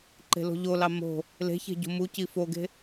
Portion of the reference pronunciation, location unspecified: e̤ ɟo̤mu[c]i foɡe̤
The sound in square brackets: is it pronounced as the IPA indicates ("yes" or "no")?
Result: yes